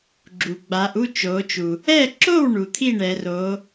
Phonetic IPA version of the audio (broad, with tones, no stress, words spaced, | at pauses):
ɡ͡ǁu˩ ɡ͡baː˩˧ʔu˥˩ t͡ʃoː˩˧t͡ʃu˩ | ɛː˥˩ ǁo˥˩wɳu˩ t̪ʰi˥˩ɳɛː˩˧roː˩˧